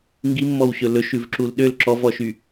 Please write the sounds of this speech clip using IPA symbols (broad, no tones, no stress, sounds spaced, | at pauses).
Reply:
ŋ ɡ i mː ɔ w ɕ ɵ l ɵ ʃ ʉ v ǁ u l ɗ ø l ǁ ɔ v ɔ ʃ y